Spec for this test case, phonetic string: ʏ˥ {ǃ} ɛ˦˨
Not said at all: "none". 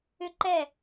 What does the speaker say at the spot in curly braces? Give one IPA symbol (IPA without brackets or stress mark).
ǃ